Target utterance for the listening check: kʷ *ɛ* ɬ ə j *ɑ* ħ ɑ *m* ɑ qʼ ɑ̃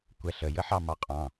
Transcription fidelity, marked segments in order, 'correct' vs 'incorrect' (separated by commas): correct, incorrect, correct